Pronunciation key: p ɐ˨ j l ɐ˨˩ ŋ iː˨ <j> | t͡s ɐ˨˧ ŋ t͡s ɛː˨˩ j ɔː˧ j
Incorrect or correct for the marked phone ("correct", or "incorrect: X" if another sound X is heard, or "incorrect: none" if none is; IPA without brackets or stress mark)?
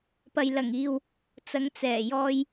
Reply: incorrect: w